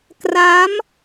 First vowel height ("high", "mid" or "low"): low